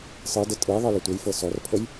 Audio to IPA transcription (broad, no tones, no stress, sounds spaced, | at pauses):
sˤ ɯ d ə tʼ ɯ ðˤ ɯ l ə tʷ ə j f ɤ s ɔ r pʰ ə j